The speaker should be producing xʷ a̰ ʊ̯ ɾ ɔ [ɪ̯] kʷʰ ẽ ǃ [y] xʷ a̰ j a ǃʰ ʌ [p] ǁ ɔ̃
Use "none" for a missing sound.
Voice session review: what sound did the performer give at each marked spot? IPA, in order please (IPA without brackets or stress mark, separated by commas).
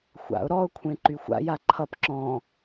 ʊ̯, y, p